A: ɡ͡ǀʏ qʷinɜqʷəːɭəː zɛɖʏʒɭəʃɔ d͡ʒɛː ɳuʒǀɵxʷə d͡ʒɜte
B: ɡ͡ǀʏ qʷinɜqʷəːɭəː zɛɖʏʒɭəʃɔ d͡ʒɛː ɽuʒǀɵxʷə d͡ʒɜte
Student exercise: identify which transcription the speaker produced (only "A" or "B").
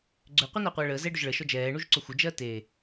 A